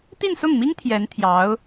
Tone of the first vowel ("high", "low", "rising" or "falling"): falling